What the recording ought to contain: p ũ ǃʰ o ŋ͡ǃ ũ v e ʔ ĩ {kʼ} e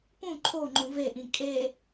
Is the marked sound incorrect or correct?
correct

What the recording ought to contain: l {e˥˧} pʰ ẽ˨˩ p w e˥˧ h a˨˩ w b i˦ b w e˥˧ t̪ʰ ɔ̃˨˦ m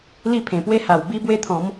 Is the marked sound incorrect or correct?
incorrect: i˥˧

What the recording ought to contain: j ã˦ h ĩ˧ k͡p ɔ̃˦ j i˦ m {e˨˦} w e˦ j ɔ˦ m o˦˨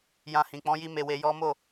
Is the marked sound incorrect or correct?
incorrect: e˦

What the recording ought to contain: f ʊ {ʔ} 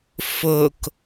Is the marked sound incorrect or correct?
incorrect: k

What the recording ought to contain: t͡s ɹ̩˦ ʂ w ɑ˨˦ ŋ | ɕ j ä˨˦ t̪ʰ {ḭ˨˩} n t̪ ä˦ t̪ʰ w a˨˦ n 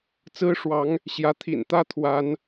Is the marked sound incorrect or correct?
correct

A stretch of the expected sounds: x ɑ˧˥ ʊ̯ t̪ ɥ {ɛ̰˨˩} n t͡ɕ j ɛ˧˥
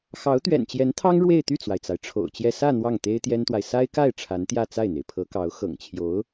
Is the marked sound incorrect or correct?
correct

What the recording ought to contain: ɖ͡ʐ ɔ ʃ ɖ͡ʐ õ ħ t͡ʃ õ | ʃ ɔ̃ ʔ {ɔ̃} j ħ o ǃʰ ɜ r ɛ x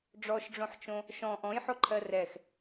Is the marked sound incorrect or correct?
correct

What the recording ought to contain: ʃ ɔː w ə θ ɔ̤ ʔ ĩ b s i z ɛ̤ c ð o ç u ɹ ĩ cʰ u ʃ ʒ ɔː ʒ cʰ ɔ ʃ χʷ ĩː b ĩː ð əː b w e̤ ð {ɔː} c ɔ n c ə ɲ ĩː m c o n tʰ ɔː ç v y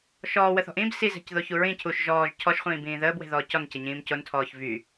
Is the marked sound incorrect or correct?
correct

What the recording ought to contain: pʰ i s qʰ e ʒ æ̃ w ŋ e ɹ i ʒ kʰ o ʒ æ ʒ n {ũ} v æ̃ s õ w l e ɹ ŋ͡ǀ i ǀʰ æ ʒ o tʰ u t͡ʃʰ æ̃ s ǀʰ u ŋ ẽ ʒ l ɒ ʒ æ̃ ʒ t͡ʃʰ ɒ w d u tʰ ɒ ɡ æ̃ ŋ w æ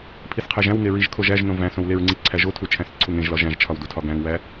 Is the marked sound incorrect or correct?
incorrect: õ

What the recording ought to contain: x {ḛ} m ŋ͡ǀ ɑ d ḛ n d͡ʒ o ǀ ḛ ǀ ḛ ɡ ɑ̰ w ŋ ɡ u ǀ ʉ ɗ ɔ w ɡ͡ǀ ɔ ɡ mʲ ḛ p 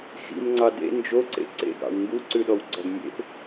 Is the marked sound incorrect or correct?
incorrect: ḭ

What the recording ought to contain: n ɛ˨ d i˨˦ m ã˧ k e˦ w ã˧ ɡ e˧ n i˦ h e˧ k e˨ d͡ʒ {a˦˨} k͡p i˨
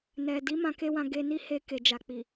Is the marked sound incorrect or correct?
incorrect: a˨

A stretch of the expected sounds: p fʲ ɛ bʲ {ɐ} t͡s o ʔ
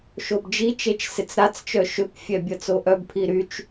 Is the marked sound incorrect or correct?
correct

